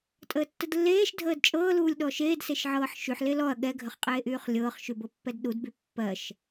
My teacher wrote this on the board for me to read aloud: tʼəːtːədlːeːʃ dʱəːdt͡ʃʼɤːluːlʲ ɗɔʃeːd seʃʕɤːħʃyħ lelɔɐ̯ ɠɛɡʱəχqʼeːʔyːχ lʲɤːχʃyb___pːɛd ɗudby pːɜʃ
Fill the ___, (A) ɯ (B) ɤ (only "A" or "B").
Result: B